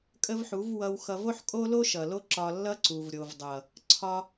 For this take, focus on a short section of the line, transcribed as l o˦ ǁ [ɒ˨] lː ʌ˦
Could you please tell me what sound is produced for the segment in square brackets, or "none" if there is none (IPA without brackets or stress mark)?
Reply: ɒ˧